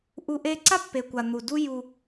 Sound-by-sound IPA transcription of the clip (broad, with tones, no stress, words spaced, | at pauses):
ʔu˦ ʔe˦ ǀa˦pːe˨kʷa˨ n̪u˨du˦ ju˦